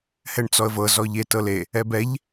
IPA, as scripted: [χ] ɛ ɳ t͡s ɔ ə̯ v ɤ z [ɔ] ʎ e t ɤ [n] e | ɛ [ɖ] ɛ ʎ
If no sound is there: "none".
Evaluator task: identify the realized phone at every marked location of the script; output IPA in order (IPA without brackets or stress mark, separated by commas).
h, ɔ, l, b